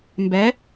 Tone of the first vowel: rising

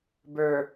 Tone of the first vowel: low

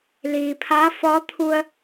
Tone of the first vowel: low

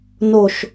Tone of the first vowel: falling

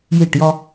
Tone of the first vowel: falling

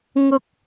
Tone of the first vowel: high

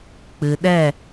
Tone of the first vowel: low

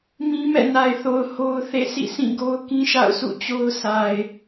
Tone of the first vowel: high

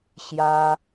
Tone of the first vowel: high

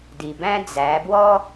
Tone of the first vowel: low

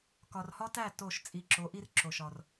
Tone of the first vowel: low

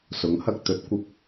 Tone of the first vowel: rising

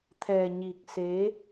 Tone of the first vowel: low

